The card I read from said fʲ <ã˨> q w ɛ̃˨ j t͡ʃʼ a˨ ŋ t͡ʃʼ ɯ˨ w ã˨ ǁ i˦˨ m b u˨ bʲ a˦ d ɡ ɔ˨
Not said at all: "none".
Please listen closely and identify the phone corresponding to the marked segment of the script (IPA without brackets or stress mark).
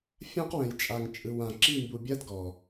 ã˦